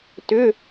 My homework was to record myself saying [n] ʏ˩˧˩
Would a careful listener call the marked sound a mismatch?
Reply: yes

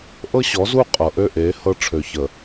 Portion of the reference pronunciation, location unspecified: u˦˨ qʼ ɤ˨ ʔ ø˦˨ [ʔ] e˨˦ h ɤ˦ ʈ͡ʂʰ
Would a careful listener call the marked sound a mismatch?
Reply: no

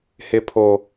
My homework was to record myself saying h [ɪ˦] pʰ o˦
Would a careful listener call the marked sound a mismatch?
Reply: no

